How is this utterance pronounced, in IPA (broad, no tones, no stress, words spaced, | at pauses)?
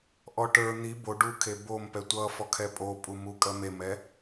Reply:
ʔɔʈə˞ n̪i bo ɖukʰe bom pɛtʷʌfɔ kʰɛpʼopʼumu kʼɜmemɛ